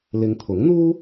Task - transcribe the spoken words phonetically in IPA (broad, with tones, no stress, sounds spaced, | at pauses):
l ɪ˨˧ ŋ t̪ʰ ʊ˨˥ ŋ n̪ uː˥